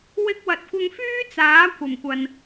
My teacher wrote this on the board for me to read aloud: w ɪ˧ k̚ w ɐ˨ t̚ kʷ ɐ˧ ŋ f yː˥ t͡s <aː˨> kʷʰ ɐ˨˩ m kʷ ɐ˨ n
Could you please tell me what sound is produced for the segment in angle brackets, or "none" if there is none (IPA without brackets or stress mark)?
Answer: aː˨˥